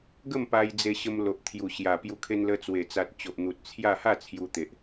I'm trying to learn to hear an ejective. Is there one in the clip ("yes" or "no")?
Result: no